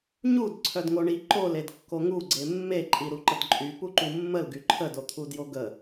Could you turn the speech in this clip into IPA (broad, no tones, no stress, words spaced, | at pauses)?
ɲud ǀʰœdŋoɳi ǃoledkːo ŋuɡ͡ǀe mːeǃʼi ɾuǃədǃʼy puǃumːəl ɡyǃʰədot̪ʰu djoɡə